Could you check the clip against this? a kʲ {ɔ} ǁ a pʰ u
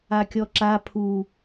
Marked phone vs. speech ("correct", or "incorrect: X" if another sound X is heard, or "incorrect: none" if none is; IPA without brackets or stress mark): correct